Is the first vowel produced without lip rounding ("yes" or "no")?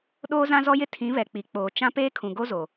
no